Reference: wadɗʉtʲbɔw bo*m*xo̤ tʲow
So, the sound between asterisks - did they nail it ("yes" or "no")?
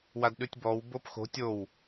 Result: no